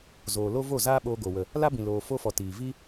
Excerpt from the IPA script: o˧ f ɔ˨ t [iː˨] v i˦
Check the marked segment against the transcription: correct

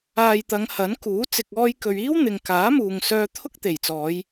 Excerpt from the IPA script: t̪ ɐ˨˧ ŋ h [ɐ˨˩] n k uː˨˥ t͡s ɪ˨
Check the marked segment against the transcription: incorrect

